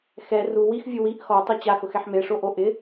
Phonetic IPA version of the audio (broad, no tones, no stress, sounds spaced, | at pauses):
x ɛ r u w i x vʲ u w i ʔ x ɔ tˤ i t͡ɕ a x ʊ x ɛ ħ m e ʂ o ʔ o ʔ ɪ